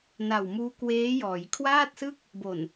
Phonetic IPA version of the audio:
n a˨˩ w m uː˦˥ k w eː˦˥ j ɔː˩˦ j kʰ w aː˥˩ t̚ s ɯ˥˩ k̚ | b o˨˩ n

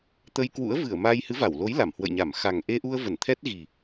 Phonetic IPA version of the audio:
t̪ ə˧ j k w ṵ˧˥ ə̯ v ɨ˧˩ ə̯ m a˧ j h ɨ˨˦ v a˧˩ w l o˨˦ j l a˧˩ m h w ə̰˧˨ j ɲ a˧˩ m x a˨˩ ŋ ʔ e˧ ʔ u˧ ə̯ v ə˧˩ n t̪ʰ ɛ˦˥ t̚ ɣ i˨˩

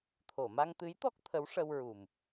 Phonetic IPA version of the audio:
t̪ʰ o˨˩˨ m a˧ ŋ t̪ ɨ˧˥ j t̪ ɔ˦˥ k̚ t̪ʰ ə˧˥ w ʂ ə˧ w ɹ u˨˩ m

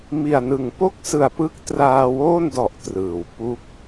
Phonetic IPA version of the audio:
m i˨˩ a̯ n ɯ˨˩ ŋ p o˥˩ k̚ s ɯ˨˩ a̯ p ɯ˦˥ k̚ t r aː˧ w oː˥˩ n d ɔ˨˩ ʔ t r ɯː˩˦ w p u˦˥ k̚

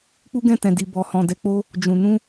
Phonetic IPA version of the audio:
k͡p u˦ ɡ ɛ̃˦˨ t ɛ̃˨ d i˨ b ɔ˨ h ɔ̃˨ d ɛ˨˦ k͡p o˦ | d͡ʒ ũ˨ n ũ˧

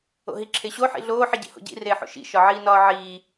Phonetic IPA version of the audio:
o̰ ɦ i ǁʰ e ɕ o ħ ḭ ɮ oː ħ i ɟ ḭ h o̰ ɟ ḭ r eː ħ o̰ ʃ ḭ ʃ ɒ ʕ iː n ɒː ʕ iː

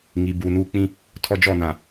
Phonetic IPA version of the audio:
ŋ i˨ b uː˨ n uː˦ k͡p ĩ˦ | tʰ ɔ˦ d͡ʒ ɔ˦˨ n ã˨

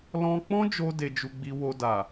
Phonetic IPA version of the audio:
l ɔ̃˧ k͡p ɔ̃˦ d͡ʒ o˧ d e˧ d͡ʒ u˧ ɡ͡b i˧ w o˧ d a˨

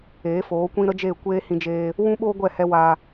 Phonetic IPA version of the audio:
eː˨˦ f oː˨˦ kʷ ĩ˦ ɾ ə˦ d͡ʒ eː˦˨ kʷ eː˦ h ĩ˧ d͡ʒ eː˧ | w ũ˦ ɓ oː˦ ɡʷ ɛ˦˨ h ɛ˧ w a˧

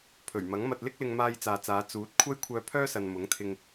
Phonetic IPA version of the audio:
pʰ ɵ˨˩ ɥ m ɐ˨˥ ŋ m ɐ˧ t̚ l ɪ˥ k̚ l ɪ˧ ŋ m aː˧ j t͡s aː˨ t͡s aː˨˧ t͡s uː˨˥ t̚ kʷʰ ɐ˥ j kʷʰ œː˧ pʰ œː˥ s ɐ˨ n m ʊ˨˥ ŋ t̪ʰ ɪ˧ ŋ

